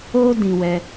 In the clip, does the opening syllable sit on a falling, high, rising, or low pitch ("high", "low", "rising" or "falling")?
high